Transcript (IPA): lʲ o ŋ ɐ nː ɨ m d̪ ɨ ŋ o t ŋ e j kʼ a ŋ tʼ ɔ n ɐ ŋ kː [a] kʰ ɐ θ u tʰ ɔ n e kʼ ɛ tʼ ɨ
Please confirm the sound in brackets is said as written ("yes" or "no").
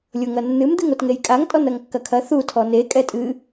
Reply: no